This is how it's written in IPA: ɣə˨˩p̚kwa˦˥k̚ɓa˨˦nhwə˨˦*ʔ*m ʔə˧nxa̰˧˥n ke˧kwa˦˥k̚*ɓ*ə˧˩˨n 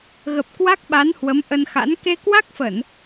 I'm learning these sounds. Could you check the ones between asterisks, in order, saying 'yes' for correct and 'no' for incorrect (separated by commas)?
no, no